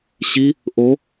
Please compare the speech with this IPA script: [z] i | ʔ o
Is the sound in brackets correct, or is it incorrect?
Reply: incorrect: ɕ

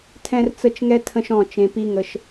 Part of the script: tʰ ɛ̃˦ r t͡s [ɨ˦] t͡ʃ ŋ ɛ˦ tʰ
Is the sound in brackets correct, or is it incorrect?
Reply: incorrect: ə˦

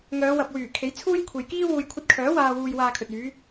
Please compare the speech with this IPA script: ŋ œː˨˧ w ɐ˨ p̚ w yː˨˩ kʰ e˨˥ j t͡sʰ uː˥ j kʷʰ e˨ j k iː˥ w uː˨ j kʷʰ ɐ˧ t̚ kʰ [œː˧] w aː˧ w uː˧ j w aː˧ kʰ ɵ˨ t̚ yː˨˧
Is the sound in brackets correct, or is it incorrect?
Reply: incorrect: œː˨˥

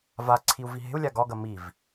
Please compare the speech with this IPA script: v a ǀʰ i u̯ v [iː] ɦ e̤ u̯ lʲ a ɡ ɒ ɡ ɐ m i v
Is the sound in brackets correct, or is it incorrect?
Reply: incorrect: i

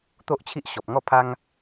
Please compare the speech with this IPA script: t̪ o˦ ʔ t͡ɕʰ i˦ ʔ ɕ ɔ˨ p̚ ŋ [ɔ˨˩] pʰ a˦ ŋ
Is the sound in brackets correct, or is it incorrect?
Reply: incorrect: ɔ˥˧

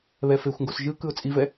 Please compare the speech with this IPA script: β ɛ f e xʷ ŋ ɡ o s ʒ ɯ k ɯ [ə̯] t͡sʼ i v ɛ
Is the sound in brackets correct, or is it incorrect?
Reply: incorrect: ʊ̯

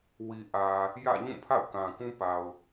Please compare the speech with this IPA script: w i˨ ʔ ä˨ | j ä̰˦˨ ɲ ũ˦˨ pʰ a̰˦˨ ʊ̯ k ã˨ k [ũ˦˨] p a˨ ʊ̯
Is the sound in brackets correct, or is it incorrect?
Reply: incorrect: ũ˦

